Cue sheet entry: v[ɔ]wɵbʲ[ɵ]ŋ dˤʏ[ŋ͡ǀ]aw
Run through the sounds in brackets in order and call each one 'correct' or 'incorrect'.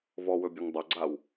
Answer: correct, correct, incorrect

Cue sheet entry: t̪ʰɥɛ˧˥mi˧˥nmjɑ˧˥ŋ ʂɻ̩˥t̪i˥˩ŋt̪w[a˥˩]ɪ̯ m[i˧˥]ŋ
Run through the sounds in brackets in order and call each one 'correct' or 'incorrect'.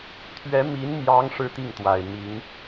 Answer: incorrect, correct

